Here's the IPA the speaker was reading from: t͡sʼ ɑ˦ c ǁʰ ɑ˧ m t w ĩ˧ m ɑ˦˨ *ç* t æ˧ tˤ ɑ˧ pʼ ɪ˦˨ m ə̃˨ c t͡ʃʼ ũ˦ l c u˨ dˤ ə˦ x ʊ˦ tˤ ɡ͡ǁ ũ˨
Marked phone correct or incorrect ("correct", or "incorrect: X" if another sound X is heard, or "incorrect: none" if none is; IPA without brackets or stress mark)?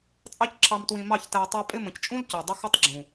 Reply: correct